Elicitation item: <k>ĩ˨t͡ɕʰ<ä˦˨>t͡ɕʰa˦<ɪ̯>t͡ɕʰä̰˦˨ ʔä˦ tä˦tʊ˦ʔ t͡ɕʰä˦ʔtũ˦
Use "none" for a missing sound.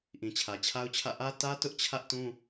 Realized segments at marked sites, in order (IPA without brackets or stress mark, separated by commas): ʔ, ä˨, ʊ̯